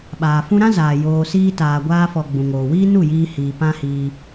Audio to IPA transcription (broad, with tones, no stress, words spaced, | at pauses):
ɓaː˨fũ˧ɾã˦zaː˨ joː˧siː˦ taː˨ɡʷaː˧fɔ˨ ɡ͡bũ˨ŋoː˨wiː˦ nu˦˨jiː˧hiː˨ pã˦hiː˧